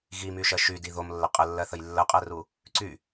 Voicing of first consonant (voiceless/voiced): voiced